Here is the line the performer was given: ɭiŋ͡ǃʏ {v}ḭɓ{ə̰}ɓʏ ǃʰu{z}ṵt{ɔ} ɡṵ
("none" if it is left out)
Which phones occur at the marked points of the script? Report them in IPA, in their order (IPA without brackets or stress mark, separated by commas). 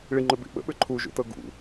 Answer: b, ə̰, ʒ, ɤ